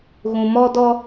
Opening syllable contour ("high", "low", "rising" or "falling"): low